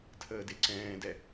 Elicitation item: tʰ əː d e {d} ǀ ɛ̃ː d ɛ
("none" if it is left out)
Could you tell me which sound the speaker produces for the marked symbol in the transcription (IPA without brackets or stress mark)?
none